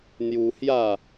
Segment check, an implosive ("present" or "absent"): absent